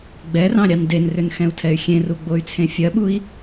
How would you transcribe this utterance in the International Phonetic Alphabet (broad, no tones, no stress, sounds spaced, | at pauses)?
ɡ͡b ɛ r ɑ̃ ɾʲ ɑ n d e n r ʏ n x ɛ̃ u̯ tʰ ɛ y̯ xʲ ẽ r u ɡ͡b o y̯ t͡sʰ ẽ fʲ ɜ ɓ u i̯